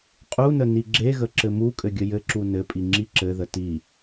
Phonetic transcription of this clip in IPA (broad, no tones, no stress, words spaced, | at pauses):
qʼunə niɡ͡ǁeɣə ǁɘmukʼɘ ɡʲəjɘǁu nɘpʼi ŋ͡ǁiǁɘðə ti